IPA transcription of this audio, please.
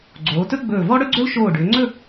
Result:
ɡ͡ǀ oː˩˧ t ɵ˥ ɡ͡b ɵː˧˩ v ɔ˥ ɽ ɵ˥ ɡ͡ǀ ɵ˥ l ʃ oː˧˩ ɖ ʏː˩˧ ŋ͡ǀ ɵ˥˧

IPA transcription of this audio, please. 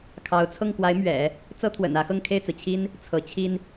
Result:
kʰ ɑ˧˥ ʊ̯ t͡sʰ ɤ˥˩ ŋ k w a˧˥ ɪ̯ m ɥ ɛ̰˨˩˦ | t͡s ɤ˥ t̪ʰ w ə̰˨˩ n ä˧˥ x ɤ˥˧ ŋ kʰ e˥˩ ɪ̯ t͡s ɹ̩˩ t͡ɕʰ i˥ n | t͡sʰ ɤ˧˥ t͡ɕʰ i˥ n

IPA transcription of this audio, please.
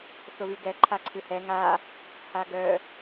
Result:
θ ʊ β y ɡ ɛ ǃʰ a ǀʰ ɨ h ɛ ŋ a | h a ɡ œ

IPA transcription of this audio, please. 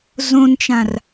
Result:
z õ n t͡ʃ ã r

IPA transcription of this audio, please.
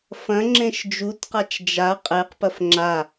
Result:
f ɐ̃ ŋ͡ǁ ẽ ʃ d͡ʒ u t q a t͡ʃ d͡ʒ a qʼ e q p ɐ f ŋ͡ǁ a

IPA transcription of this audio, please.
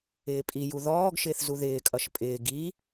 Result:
ɪː pʼ i j u ð ɔː ɡ ʃ ɪː θ z u ð ɪː kʼ ʌ ʃ pʼ ɪː ɡ i

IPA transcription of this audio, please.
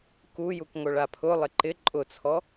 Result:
k u j u k ŋ o ɭ a pʰ ʊ lˠ ɪ ǃ ɪ ǃʼ ʊ t͡sʰ ɔ

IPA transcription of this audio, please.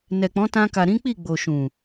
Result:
n ɛ˨ k͡p ɔ̃˨˦ t ã˧ k a˨ ɾ ĩ˨˦ k͡p i˦˨ ɡ͡b o˨ ʃ ũ˨

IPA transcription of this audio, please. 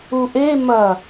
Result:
u ʔ e m ɐ

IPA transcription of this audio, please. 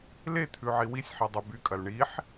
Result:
l e t̪ʰ ʉ ʕ i w i sʲ ħ i dˤ ʉ b y kʼ ɐ l ɳ i ħ

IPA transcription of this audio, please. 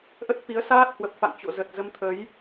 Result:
ʔ ə˦˥ t̚ f i˨˦ ə̯ s aː˦˥ t̚ h w ə˨˩ p̚ f a̰˧˨ ŋ t͡ɕ o̰˧˨ z ə˨˩ t̚ z ə˨˦ m t̪ʰ ə˨˦ j

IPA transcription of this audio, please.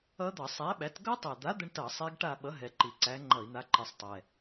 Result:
ʌ˦˥ d̪ ʌ˧˩˧ sˤ æ˨˥ ɓ æ˨˥ t ɡ ʌ˦˥ tˤ ɛ˨˩ d̪ a˨˥ d̪ ə˦˥ ɳ t ʌ˧˩˧ sˤ e˦˥ ɡ ʈ a˥˧ ɓ ʌ˨˥ ɦ ɛ˨˩ ǃ i˨˩ ǀ æ˨˥ ŋ͡ǃ ʌ˧˩˧ i̯ n̪ a˨˥ ǃ i˨˩ sˤ tˤ ɛ˨˩

